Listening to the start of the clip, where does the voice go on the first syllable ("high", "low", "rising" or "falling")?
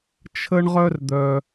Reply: high